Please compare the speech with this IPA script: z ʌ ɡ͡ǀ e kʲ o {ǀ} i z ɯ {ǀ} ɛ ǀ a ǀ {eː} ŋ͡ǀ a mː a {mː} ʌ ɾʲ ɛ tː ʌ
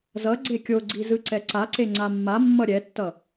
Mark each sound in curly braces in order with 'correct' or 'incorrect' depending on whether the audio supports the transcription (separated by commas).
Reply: incorrect, correct, incorrect, correct